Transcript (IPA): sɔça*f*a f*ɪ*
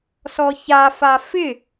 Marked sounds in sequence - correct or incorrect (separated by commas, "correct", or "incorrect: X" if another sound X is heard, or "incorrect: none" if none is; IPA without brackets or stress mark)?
correct, correct